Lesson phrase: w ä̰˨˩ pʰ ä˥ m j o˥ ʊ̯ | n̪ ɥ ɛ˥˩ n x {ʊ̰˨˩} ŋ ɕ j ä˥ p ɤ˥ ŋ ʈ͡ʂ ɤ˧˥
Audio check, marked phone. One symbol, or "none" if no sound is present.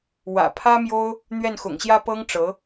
ʊ̰˨˩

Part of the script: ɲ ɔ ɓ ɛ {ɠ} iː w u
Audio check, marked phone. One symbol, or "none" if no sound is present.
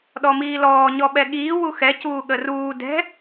ɠ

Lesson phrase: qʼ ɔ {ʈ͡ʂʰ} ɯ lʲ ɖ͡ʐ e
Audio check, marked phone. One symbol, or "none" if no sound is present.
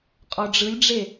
ɖ͡ʐ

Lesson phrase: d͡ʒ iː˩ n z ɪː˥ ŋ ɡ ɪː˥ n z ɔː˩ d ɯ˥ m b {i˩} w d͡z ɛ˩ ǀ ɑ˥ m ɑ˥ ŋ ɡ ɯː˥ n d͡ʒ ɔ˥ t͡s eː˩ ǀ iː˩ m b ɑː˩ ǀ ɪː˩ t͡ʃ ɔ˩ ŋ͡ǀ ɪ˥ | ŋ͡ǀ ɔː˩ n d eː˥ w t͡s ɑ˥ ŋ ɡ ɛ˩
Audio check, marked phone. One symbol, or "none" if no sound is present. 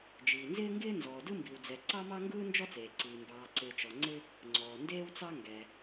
i˩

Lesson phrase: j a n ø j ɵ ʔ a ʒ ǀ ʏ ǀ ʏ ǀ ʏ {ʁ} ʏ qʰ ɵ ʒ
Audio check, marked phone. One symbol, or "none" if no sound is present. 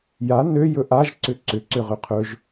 ʁ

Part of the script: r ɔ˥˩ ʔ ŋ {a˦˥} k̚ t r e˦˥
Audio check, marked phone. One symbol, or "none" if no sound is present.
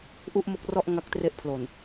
a˦˥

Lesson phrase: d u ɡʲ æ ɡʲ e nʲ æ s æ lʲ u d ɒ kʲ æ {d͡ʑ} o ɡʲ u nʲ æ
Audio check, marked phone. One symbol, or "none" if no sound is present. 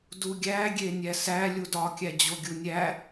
d͡ʑ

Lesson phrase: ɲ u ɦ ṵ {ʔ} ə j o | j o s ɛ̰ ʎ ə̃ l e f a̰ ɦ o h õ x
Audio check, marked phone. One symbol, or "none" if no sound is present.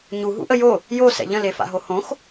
ʔ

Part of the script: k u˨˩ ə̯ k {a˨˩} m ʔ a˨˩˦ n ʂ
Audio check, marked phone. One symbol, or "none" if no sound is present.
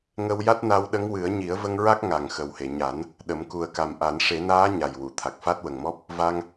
a˨˩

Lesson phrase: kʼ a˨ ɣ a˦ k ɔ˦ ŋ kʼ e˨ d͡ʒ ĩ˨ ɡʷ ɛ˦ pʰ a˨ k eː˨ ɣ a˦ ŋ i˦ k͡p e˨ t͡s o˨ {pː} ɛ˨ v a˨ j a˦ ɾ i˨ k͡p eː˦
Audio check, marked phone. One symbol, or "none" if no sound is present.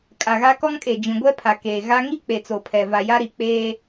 pʰ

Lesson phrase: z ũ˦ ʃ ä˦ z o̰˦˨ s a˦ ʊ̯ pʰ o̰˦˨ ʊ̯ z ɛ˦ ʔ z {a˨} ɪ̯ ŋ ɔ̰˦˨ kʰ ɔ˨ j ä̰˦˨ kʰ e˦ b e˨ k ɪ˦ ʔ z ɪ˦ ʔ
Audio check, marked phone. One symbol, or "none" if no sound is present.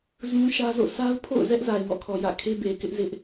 a˨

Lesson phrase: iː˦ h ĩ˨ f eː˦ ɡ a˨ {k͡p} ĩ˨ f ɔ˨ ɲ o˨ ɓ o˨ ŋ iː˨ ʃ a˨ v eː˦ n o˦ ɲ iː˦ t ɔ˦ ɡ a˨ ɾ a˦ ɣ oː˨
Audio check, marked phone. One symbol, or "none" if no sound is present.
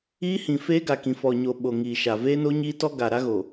k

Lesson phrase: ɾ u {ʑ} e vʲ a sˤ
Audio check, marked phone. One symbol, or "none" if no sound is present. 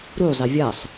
zˤ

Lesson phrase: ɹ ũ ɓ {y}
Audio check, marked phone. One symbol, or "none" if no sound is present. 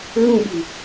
ɨ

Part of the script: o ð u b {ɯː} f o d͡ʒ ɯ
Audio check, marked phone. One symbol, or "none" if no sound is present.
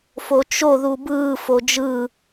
ɯː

